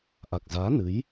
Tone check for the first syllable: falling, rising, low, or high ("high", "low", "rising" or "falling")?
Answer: low